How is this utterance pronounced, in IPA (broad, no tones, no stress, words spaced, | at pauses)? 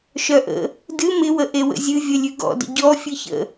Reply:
ʃœʔə̰ | dɨ mɪwə ʔewə̰zʲɨ vʲəlʲʉɡɔ̰də̰ ɟɔ fʲɨçə̰